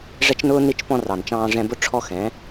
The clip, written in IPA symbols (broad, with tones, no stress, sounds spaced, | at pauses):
ʐ ɛ˦ t͡ʃ n ʊː˦ n i˧ t͡ʃ p ɔ̃˧ r ɑ˨ n t͡ʃ ɑ̃ː˧ ʐ ɛ̃˧ b ʊ˦ ʈ͡ʂʰ ɔ˦ x ɛ̃˨˦